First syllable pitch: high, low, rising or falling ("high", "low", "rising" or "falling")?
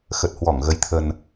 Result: low